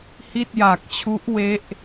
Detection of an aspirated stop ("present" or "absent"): present